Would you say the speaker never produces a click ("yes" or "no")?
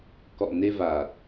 yes